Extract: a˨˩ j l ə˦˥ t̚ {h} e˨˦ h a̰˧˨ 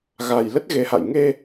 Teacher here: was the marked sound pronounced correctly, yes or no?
no